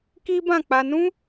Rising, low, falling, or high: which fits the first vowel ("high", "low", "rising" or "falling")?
high